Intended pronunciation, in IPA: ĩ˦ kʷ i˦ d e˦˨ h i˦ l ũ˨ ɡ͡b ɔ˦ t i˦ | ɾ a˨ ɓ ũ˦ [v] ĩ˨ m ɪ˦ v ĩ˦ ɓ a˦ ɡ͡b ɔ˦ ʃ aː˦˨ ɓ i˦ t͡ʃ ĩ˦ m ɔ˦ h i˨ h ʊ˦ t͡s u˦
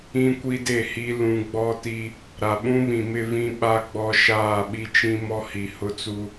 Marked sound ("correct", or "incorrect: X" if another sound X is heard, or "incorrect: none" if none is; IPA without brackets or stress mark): incorrect: β